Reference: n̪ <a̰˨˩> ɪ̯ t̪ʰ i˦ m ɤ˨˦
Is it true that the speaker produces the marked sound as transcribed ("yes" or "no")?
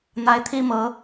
no